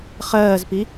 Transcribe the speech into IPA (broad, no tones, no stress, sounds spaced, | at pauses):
χ ɜː z p i